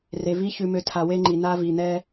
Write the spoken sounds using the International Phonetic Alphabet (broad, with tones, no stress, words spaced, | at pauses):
re˨vi˦ çʉ˦mø˦ tʰa˨ we˦ŋ͡ǃi˨ na˦vi˨n̪ɛ˦